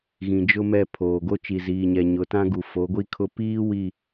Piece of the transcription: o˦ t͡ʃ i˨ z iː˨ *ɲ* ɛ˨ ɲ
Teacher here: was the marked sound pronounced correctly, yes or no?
yes